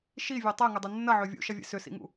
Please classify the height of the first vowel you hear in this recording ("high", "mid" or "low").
high